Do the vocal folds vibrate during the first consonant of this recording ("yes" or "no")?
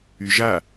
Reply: yes